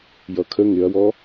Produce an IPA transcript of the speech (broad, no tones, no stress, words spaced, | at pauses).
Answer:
jʌkʰə ŋɪɐ̯wɔ